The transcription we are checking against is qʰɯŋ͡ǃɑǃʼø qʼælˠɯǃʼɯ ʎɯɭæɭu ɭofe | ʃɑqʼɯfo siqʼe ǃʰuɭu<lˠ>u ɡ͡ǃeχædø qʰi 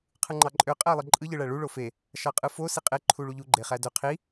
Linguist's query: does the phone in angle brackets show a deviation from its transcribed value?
yes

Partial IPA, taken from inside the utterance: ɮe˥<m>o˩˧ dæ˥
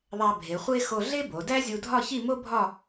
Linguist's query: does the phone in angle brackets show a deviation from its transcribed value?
yes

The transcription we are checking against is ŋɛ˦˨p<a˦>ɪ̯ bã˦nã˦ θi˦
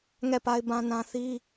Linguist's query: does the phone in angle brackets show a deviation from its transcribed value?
no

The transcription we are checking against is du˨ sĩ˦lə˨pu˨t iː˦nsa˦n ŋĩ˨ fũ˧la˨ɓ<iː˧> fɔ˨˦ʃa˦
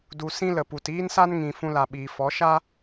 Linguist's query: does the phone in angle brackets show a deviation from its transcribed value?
yes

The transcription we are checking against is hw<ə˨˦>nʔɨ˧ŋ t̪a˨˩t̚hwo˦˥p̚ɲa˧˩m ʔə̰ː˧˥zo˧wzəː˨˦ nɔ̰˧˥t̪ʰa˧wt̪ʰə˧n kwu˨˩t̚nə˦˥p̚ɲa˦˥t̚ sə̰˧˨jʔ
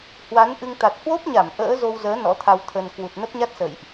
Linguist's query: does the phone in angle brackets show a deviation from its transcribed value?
yes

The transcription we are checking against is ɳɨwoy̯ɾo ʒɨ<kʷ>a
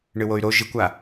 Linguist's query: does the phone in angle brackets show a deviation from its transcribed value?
no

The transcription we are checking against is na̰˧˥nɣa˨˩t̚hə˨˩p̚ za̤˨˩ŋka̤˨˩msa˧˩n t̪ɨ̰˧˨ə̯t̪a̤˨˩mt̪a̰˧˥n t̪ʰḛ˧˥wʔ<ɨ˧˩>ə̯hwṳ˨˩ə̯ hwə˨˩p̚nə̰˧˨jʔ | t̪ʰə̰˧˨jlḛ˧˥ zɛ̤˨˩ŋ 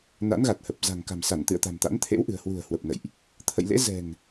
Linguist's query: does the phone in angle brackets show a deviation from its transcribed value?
yes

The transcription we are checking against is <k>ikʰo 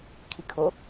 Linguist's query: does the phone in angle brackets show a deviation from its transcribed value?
yes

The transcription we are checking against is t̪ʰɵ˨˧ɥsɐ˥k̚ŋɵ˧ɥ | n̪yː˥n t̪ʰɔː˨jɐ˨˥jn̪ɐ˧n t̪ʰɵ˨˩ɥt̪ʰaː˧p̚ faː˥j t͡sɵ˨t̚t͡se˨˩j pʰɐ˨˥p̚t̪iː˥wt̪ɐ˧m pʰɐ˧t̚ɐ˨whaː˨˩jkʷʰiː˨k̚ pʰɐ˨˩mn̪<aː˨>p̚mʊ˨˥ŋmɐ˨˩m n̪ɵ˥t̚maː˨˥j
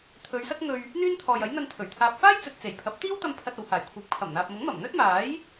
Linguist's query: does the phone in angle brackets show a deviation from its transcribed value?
no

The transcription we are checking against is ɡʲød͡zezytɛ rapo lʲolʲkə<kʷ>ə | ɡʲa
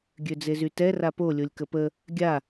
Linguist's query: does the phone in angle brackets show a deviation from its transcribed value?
yes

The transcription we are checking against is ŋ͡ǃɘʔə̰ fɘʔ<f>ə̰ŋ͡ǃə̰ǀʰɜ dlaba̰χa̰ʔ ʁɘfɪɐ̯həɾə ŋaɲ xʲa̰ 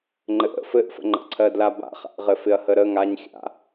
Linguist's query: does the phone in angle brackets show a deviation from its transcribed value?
no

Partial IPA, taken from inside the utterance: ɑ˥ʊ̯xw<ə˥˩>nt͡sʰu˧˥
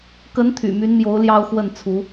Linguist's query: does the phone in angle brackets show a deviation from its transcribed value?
no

